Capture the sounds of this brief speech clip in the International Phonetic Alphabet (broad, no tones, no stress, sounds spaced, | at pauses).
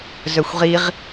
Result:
z œ xʷ ʁ i ʁ